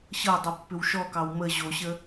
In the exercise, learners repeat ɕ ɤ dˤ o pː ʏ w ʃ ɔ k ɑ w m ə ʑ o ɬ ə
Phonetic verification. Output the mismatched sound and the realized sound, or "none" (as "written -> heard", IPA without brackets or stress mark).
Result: ɬ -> ɕ